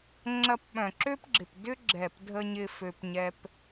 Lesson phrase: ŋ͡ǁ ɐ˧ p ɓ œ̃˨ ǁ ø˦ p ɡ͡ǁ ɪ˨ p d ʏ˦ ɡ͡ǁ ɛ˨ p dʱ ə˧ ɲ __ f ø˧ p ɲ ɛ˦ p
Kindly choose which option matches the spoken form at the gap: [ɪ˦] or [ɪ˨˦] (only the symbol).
ɪ˦